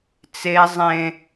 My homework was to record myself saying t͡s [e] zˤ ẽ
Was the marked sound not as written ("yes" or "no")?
no